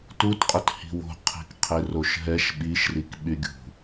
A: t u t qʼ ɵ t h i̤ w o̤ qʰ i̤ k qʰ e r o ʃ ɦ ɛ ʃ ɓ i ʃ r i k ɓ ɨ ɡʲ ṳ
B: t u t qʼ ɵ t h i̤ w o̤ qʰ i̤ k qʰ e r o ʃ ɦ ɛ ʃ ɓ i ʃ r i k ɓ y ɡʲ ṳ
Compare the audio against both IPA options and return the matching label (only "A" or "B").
B